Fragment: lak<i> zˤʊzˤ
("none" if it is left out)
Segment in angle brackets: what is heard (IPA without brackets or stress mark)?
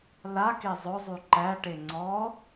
e